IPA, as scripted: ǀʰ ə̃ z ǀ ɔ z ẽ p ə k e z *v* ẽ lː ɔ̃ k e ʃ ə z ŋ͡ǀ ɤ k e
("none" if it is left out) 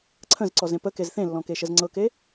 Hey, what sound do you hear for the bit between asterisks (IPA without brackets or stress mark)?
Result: θ